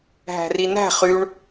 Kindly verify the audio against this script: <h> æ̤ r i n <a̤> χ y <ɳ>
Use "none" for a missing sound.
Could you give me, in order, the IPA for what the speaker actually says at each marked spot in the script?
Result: ɦ, æ̤, ɳ

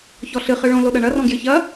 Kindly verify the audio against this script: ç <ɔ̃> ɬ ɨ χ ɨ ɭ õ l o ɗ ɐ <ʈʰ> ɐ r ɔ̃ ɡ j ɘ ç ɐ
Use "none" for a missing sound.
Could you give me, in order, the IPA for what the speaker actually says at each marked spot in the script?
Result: ɔ, ɳ

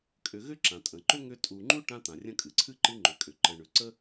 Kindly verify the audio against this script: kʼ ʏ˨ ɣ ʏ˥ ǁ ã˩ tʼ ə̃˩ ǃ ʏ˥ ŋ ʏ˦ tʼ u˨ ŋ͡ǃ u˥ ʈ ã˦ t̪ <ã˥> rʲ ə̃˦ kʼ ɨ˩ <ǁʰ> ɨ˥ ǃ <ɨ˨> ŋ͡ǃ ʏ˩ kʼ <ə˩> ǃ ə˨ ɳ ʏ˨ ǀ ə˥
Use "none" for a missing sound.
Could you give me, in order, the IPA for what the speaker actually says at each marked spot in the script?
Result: ã˩, ǀʰ, ɨ˦, ʏ˩

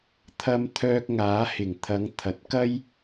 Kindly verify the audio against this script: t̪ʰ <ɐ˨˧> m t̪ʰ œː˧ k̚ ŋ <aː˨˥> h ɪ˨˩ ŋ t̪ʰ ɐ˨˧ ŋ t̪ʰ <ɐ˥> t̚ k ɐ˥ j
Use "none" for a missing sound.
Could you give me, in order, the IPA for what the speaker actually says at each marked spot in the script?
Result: ɐ˨˧, aː˨˥, ɐ˨

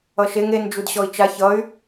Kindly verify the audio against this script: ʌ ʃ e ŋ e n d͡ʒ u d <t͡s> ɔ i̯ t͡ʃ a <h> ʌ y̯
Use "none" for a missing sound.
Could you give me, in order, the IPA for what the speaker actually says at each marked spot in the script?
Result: ɕ, ç

